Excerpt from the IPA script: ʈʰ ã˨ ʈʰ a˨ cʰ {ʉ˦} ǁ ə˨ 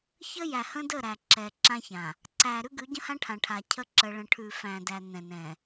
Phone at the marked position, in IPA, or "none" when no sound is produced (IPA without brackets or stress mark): ə˦